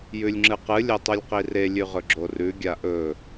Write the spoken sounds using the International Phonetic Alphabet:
j ʉ lʲ ŋ͡ǁ ɨ q ɨ lʲ ɐ tˤ ɵ lʲ q i r e lʲ ʉ ʁ ɵ ɡ͡ǁ o r ʉ ɡʲ a ʔ ɵ

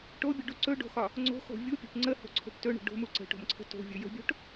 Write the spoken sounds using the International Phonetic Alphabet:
ʈ o bʲ u ɖ u ǀ ɵ ɖ o̤ x ɒ | ŋ͡ǀ o̤ x o̤ vʲ u pʲ o̤ p ŋ͡ǀ ə h o̤ ǀʰ o̤ ʈ t ɵ ɳ ə̤ ɖ o̤ m u ǀ ə̤ ʈ o̤ m ǀʰ ə̤ t o̤ vʲ ɵ j ə̤ bʲ o̤ ʈ

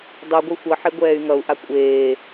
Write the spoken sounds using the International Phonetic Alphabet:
dˤ ʉ ɡʷ ɨ xʷ ʌ ħ e ɡʷ ɛː y̯ ŋ ʌ u̯ ʔ a kʷʼ eː

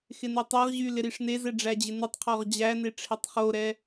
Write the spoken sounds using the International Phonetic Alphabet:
x ɪ n u tˤ ɛ ʁ ʑ y l ɪ ɾ i ʂ n e z ɛ ɖ͡ʐ æ d͡ʑ ɪ n ɯ tˤ qʰ ɔ ʁ d͡ʑ æ n e ʈ͡ʂʰ e tˤ χ o ɾ ɛ

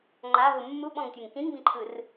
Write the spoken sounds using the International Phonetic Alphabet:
ŋ͡ǃ a ɦ ɯ mː u ɓ ɔ̃ ŋ tʲ ɯ ŋ k ĩ ŋ b ĩ ǃʰ ɯ r

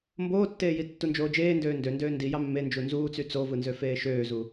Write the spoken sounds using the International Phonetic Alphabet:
m b oː tː eː j i tː u n d͡ʒ oː d͡ʒ eː n d øː n d ø n d øː n d i j ɑ mː e n d͡ʒ u n z uː t͡s y t͡s o v ɯ n z ø f eː ʃ øː z u

